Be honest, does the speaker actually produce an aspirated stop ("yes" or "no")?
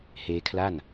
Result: yes